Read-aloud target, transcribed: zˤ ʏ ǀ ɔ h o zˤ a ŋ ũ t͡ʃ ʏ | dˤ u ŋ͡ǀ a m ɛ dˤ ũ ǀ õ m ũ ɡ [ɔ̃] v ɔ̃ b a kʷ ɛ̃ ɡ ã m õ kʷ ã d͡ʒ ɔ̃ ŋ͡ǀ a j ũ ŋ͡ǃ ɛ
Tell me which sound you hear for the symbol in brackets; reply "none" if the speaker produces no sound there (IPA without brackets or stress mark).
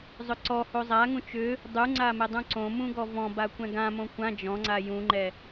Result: ɔ